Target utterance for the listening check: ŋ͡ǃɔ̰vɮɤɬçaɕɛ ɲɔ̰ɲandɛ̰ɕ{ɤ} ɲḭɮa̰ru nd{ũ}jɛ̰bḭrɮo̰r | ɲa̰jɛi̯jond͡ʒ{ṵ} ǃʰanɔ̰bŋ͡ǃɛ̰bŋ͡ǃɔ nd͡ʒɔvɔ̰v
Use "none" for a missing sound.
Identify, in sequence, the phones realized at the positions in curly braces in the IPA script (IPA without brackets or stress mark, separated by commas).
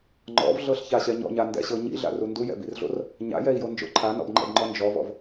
ɤ, u, o̰